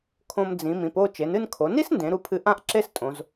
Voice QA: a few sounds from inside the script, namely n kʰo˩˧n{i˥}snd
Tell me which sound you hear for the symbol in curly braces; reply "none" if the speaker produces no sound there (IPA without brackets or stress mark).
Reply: i˥